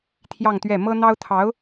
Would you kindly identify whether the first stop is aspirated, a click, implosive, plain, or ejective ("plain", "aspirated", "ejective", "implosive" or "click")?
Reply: aspirated